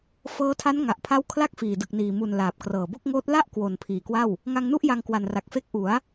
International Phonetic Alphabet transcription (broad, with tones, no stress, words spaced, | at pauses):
fɤː˦˥tʰa˦˥n ŋa˨˩ʔpʰa˦˥w kʰla˥˩k̚fiː˨˩dɯ˨˩k̚niː˨˩ mu˨˩n laː˨˩p̚krɤː˨˩bo˥˩k̚ŋoː˦˥t̚ la˥˩ʔ kwo˨˩n pʰiː˨˩kwa˥˩w | ŋa˧ŋnu˥˩ʔ ja˧ŋkwa˨˩nra˨˩k̚fe˦˥k̚ ʔu˩˦a̯